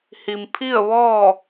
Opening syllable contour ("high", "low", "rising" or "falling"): low